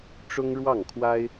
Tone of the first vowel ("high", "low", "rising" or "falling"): high